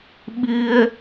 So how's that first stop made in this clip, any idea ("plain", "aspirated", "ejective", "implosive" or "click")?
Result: implosive